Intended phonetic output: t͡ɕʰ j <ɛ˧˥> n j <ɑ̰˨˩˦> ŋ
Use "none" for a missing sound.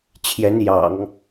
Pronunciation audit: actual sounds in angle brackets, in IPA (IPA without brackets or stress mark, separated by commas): ɛ˧˥, ɑ̰˨˩˦